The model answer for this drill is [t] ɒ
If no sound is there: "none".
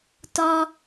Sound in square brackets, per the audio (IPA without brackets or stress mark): t